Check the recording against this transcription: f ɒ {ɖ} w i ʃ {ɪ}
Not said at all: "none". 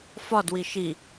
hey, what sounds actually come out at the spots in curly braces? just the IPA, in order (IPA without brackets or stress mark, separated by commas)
d, i